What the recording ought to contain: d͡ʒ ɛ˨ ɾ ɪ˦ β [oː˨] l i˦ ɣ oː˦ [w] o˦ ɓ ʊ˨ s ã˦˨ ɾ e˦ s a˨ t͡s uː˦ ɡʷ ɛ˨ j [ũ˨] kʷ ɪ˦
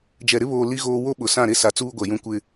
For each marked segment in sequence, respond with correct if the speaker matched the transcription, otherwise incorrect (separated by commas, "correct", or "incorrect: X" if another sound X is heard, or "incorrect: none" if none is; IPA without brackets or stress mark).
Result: correct, correct, incorrect: ũ˦